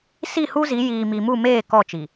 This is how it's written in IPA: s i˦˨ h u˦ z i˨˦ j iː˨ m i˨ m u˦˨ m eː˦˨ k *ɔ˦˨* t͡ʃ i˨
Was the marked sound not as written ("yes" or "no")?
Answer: no